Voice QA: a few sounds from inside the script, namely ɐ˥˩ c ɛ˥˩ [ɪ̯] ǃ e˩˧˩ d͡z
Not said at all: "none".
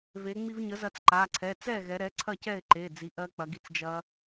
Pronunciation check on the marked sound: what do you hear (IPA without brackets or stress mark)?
ɪ̯